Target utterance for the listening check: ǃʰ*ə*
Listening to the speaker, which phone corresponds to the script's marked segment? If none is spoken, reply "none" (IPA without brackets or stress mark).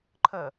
ə